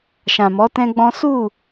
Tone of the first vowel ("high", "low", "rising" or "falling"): low